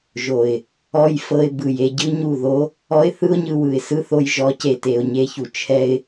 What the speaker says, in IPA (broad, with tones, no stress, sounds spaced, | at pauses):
ʒ o˨ ɪ̯ | ɔ˦ j f ɤ˧ ɪ̯ b ɯ˨ j e˧ ɟ ɯ˦ ɲ u˦˨ ð o˦ | ɔ˦ ɪ̯ θ ɯ˦ ʊ̯ ɲ ɯ˧ w ɯ˨ ɪ̯ s ɯ˦ θ o˧ j ʒ ɔ˨˦ c e˨ t e˨ ʊ̯ ɲ e˧ ç u˨ t͡ʃʰ ɛ˧ ɪ̯